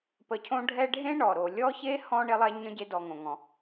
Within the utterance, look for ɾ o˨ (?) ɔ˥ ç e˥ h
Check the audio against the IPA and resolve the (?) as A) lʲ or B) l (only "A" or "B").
A